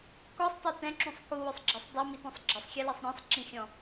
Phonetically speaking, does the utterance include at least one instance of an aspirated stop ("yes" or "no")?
no